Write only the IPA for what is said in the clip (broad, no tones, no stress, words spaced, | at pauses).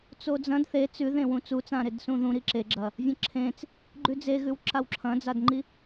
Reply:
t͡sod͡zɐ̃d θe t͡sʉðẽ wũt͡sut͡sãɾed sũðũɾi ǁeɡ͡ǁɐ | vʲɐ̃ǁʰẽt͡s | ɡ͡ǃʉd͡zeɣʉw ǁawǁʰɐ̃d͡zadŋ͡ǃi